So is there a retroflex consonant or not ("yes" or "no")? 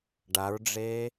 yes